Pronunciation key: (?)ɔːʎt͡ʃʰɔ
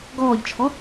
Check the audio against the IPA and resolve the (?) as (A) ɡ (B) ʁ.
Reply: A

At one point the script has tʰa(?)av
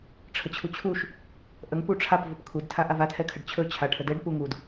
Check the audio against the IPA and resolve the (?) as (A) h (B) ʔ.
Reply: B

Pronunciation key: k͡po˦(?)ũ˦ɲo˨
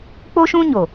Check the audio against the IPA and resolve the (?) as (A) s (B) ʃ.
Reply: B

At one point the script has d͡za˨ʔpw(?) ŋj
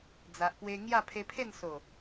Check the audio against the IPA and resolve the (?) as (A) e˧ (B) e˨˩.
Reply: A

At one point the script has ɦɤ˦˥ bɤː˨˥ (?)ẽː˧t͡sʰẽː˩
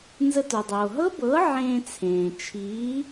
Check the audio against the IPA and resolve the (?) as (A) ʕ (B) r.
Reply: A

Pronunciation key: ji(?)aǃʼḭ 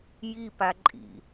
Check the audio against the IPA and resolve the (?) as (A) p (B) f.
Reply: A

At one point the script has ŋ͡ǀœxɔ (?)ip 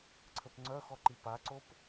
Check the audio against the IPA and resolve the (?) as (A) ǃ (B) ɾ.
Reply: A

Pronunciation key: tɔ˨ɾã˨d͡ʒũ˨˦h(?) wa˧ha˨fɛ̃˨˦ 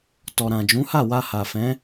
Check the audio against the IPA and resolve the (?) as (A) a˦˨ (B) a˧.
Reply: A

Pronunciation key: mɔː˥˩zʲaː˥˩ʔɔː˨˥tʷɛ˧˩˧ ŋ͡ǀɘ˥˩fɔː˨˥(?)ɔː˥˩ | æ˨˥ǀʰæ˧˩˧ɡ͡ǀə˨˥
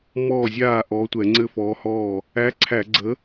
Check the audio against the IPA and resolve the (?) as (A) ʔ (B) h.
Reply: B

